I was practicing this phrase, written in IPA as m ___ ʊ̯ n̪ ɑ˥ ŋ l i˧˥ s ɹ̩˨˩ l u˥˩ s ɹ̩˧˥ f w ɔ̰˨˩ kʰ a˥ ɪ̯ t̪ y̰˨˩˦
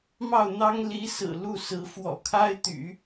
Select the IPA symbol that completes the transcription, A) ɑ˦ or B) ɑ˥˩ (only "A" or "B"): B